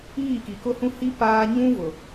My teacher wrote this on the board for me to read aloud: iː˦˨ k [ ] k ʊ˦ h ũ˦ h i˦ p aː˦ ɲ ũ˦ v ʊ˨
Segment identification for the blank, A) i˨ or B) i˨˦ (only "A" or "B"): A